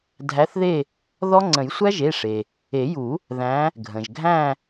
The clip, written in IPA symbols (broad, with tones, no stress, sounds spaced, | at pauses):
dʱ æ˨˦ θ ð e˦˨ | ð ɔ˦˥ ŋ͡ǀ ə̃˨˩˦ j sʷ æ˦˥ ʒ e˩˧˩ ʂ e˩ | e˨˩˦ j u˨˩˦ | ð æ̃˨˦ | ɡʱ ə̃˩ ʒ ɡʱ æ̃˦˨